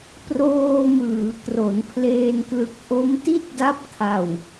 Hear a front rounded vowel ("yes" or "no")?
no